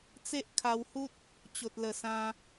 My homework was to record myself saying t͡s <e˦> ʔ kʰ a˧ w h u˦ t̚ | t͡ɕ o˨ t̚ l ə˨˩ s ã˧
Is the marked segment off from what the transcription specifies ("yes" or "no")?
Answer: no